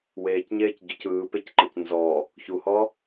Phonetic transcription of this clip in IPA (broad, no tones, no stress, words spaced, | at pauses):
weːcɲeːcɟoc ɯːpecǃɤc nzɔ | çuhɔ